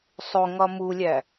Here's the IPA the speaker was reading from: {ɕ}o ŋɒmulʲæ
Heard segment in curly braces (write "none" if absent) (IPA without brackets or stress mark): sˤ